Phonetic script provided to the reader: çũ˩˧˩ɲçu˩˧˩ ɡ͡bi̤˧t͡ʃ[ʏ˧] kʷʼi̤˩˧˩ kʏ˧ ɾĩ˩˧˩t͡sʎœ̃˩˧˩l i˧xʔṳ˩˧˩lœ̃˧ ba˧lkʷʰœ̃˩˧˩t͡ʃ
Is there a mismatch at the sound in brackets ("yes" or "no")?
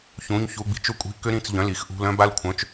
no